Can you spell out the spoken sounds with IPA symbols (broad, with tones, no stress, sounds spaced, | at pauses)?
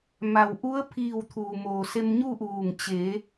m a˩ w ʔ u˧˥ ə̯ pʰ iː˧˩ w t̪ʰ uː˩ m oː˩ s e˧ m ɲ u˥˨ ʔ uː˧˩ ŋ t͡ɕ e˩˧